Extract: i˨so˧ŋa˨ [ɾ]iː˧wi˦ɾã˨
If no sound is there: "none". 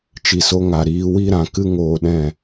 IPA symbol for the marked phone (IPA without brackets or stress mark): ɾ